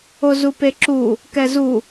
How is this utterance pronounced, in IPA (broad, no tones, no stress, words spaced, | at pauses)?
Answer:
ozupeǁu | kɛzu